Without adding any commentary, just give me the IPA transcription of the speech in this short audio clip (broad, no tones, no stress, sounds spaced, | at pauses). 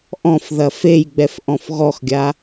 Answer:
ʔ ɔ̃ f ð ɐ f e j ɡ͡b ɛ f ʔ ɔ̃ f ɣ ɔ x ɡʲ a